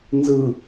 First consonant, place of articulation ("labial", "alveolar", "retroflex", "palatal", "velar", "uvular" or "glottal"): alveolar